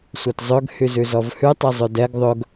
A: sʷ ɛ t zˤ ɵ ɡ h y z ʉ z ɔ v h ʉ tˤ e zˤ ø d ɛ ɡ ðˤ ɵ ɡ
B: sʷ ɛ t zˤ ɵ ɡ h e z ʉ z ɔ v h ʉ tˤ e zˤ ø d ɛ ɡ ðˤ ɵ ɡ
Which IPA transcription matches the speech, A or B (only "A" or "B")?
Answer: A